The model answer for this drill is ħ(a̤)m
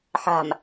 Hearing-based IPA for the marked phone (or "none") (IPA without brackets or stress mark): a̤